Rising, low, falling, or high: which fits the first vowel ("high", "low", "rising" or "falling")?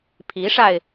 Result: rising